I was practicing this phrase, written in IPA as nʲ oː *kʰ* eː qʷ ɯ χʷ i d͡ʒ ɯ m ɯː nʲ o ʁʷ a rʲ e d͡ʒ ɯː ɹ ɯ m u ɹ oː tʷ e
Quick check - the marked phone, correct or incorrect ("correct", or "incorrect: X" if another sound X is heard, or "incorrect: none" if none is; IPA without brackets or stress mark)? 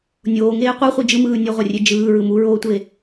incorrect: ŋ